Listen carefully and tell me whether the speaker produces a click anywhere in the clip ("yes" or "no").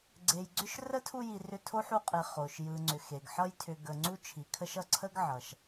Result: yes